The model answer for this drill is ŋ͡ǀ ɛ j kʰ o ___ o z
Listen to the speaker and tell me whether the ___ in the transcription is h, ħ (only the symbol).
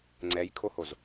h